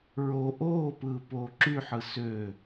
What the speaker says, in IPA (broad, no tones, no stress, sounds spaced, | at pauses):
ɹ o ʔ oː p ɯː p oː ǁ y ħ ɯ s ø